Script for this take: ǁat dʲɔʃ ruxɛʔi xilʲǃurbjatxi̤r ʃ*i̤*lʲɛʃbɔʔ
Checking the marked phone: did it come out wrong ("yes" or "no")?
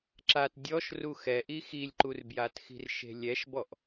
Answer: yes